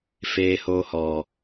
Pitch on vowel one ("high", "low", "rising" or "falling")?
low